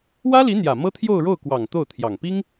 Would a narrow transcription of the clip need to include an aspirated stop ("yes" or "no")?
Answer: yes